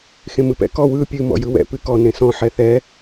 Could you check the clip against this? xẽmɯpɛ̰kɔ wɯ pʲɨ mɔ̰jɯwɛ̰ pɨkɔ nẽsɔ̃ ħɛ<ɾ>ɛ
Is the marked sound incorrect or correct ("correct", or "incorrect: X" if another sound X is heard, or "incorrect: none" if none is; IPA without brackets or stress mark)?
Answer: incorrect: θ